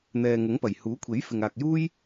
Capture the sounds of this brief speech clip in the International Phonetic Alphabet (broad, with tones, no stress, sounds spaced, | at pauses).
n̪ ɛː˨ ŋ ʊ˨˥ ŋ p ɐ˨˩ j h uː˨˥ kʷʰ e˨˥ j f ɪ˨ ŋ aː˨ k̚ j uː˥ j